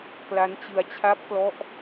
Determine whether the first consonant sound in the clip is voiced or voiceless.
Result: voiceless